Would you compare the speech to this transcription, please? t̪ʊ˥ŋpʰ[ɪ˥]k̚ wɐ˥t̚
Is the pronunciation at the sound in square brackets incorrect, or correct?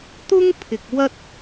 incorrect: ɪ˨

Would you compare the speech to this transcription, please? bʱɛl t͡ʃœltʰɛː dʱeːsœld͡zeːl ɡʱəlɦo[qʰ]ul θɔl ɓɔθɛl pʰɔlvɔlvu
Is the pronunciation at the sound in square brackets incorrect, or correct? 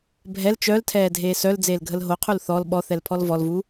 correct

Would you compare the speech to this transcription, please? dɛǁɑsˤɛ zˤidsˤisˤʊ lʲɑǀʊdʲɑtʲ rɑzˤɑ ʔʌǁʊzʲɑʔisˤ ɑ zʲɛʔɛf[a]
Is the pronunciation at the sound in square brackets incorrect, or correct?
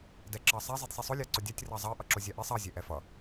incorrect: ʌ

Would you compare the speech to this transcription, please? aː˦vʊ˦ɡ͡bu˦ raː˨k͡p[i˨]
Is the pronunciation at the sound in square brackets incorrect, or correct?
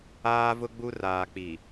correct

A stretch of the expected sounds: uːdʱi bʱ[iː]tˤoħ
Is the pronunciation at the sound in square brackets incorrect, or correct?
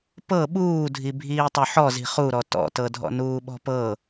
correct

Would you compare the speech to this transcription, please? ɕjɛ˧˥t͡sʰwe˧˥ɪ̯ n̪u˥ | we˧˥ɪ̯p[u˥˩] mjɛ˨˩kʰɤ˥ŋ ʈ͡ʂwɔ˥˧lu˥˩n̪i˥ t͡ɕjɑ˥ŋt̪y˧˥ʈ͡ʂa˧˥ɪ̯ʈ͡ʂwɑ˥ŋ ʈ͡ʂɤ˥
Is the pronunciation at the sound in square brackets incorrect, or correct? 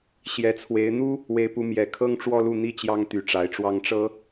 incorrect: u˧˥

